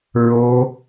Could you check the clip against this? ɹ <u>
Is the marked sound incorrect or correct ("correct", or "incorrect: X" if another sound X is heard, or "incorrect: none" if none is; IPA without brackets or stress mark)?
incorrect: o